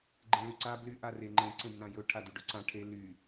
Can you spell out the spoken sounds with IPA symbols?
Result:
ɡ͡ǃẽlyǀa bly ʔareŋ͡ǃẽ ǀẽbnãjɵ ʈʰadyɖɵǀã ʈʰe ly

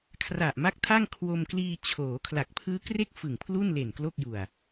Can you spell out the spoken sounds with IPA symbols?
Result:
kʰra˨˩ʔma˦˥k̚tʰa˥˩ŋ kʰwo˧mkliː˧t͡ɕʰoː˩˦ kʰla˨˩k̚pʰɯː˦˥kre˥˩k̚ fɯ˨˩ŋpʰlu˥˩nle˨˩n klo˥˩k̚ju˨˩a̯

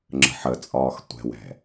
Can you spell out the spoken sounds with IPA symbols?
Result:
ŋ͡ǁə̤ħət͡sʼɒːx tʷɛ̤wɛ̤

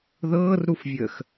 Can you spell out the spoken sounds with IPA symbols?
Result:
ðɤːrɾufvʲəːx

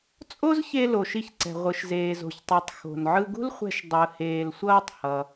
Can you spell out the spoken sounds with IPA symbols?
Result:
t͡sʼo˥zçe˧ lo˩ʃi˧çǀɛ̤˩ ʁʷɯ˩ʃzeː˩zo̤˩çtˤi˩tˤ xo̤˩nʕɯ˧ɡṳ˥lχʷɛ̤˧ʃ dˤɯ˩heː˩lsʷʌː˧tˤ hʌ˩

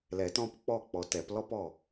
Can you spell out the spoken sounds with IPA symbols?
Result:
lɛ˨˩˦tɔ̃˦p k͡pɔ˦˨k͡pɔ˨tɛ˨˩˦p lɔ˦pɔ˦˨

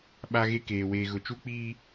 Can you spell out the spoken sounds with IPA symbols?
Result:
ɓa˦ɣe˦keː˨ weː˨ɣʊ˨t͡ʃu˦k͡piː˦

